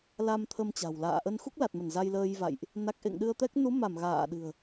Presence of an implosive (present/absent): present